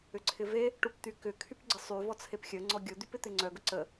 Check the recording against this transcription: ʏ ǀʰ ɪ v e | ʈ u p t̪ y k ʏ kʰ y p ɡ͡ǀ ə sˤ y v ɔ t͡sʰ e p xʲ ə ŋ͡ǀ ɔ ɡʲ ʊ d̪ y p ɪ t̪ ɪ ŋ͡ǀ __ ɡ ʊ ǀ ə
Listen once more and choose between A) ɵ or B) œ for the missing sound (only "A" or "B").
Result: B